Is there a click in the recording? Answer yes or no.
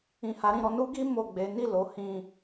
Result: no